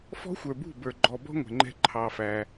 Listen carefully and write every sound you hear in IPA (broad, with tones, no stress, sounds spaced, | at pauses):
f ɔ̤˦ xʷ ə˞˨ b ṳ˦˨ b ə˞˨ ɡ͡ǃ ɔ˨ b ɔ̤˦ ŋʷ ɛ̤˨ ŋ͡ǃ ɛ̤˧ ǃʰ ɑ˧ f æ˧